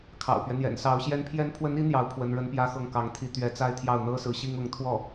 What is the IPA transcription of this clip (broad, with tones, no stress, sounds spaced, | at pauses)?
kʰ ɑ̰˨˩ ʊ̯ p ɥ ɛ˦ n̪ j ɛ̰˨˩ n s ɑ˧˥ ʊ̯ ɕ j ɛ˥ n pʰ j ɛ˧˥ n pʰ w ə˧˥ n i˧˥ n̪ j ɑ˧˥ ʊ̯ pʰ w ə˧˥ n ɻ ə˥ n p j ä˥ x ɤ˥˩ ŋ k ɑ˧˥ ŋ t̪ʰ i˧˥ t̪ ɥ ɛ˧˥ t͡s a˥ ɪ̯ t̪ʰ j ɑ˥˩ ʊ̯ n̪ ɤ˥ s ɹ̩˧˥ ɕ i˥ ŋ ʊ˧˥ ŋ t̪ʰ w ɔ˥˩